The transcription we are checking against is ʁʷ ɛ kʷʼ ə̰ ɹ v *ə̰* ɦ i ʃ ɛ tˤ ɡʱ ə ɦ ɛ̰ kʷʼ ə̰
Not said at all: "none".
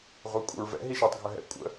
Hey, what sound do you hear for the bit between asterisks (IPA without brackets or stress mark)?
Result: ɛ̰